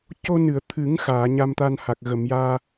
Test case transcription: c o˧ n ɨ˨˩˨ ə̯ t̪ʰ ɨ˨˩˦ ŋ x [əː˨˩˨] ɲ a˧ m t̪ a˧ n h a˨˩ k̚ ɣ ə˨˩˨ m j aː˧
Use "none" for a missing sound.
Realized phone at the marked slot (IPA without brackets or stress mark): aː˨˩˨